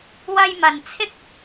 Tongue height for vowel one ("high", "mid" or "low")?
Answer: low